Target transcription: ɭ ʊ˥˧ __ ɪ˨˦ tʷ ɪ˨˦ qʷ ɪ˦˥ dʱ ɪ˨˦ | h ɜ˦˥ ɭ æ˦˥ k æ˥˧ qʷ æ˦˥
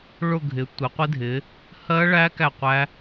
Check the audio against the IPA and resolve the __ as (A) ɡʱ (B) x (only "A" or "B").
A